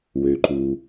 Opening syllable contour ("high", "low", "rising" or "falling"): low